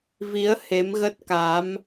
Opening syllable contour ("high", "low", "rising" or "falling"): rising